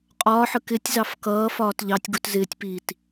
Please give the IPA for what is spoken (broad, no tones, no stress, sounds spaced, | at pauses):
qʼ ɒː ħ ə k ɪ tʲ z ɑ f k ʌː f ɒː t ʎ ɑ tʲ ɡ u t z ɪː tʲ p iː t